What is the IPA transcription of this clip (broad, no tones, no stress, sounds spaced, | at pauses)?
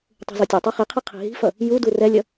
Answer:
tˤ ṳ z o tʲ e tˤ ɯ χ i qʰ i qʰ i̤ ɦ i̤ f ʌ | j u d u r ɛ lʲ ʌ